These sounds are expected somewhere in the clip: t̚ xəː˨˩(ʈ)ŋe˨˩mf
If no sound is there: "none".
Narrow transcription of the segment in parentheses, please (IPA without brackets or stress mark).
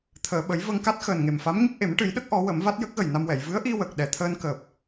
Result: n